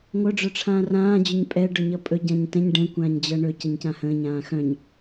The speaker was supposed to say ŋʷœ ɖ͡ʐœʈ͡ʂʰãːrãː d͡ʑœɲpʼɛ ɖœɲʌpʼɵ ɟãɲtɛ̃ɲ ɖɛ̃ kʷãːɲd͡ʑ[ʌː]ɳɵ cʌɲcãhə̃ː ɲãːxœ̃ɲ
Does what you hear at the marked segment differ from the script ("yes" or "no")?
yes